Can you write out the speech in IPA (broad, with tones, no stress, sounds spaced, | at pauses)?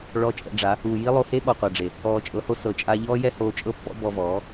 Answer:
ɭ ɔ˧ t͡ʃʼ ɛ̰˧ ɖ͡ʐ a˨˦ | uː˨ j i˦ lˠ o˧ h e˦ ɓ ɔ˨ qʷ a˨ ɖ͡ʐ e˨ | ɔː˨ t͡ʃʼ ɤ˨˦ h o˧ s ɤ˨ t͡ʃʼ aː˧ ʎ ɔː˦ j ɛ˦ h oː˧ t͡ʃʼ ɤ˦ pː ɔ̰˦ b ɔ˧ v ɔː˨˦